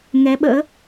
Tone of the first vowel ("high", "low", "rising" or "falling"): rising